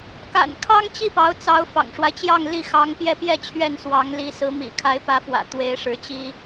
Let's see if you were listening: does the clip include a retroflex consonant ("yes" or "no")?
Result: yes